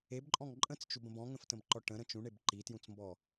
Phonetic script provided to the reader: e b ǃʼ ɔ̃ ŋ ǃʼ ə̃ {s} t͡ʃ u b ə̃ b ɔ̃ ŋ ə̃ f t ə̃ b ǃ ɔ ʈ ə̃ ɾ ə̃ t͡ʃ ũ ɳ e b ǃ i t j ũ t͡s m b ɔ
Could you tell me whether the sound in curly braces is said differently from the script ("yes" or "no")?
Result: yes